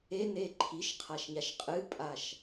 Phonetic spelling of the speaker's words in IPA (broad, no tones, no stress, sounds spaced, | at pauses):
e n e ǃʰ i ʃ qʰ a ʃ ɲ a ʃ qʼ ɨ pʼ a ʃ